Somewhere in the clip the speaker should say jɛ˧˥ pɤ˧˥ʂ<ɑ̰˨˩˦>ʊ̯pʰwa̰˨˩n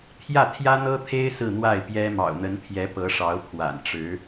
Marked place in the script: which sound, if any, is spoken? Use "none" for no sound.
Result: ɑ˧˥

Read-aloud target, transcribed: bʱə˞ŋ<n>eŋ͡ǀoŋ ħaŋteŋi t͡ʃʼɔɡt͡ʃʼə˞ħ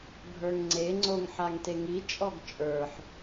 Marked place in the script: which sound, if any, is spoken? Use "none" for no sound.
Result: ŋ͡ǀ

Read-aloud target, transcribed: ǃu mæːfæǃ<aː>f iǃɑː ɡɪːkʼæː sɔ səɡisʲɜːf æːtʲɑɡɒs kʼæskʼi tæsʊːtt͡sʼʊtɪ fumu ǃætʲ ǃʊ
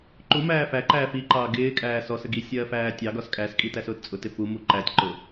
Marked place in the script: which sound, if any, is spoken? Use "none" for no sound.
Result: æː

